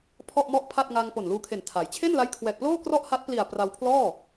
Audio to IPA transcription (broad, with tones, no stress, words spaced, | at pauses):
pʰɔ˥˩ʔmɔ˥˩ʔ pʰa˥˩t̚ŋa˧ŋ po˨˩nluː˧kʰe˨˩n tʰa˩˦j t͡ɕʰe˥˩nla˦˥jkʰwɛː˨˩k̚ploː˥˩ krɔ˥˩ʔha˦˥t̚pli˨˩a̯ pra˧wpʰlɔː˥˩